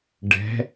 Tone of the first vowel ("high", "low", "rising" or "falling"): rising